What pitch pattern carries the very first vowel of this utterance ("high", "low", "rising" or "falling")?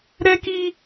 high